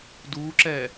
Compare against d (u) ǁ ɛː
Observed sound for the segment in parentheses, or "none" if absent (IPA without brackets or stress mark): uː